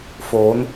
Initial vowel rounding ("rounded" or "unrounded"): rounded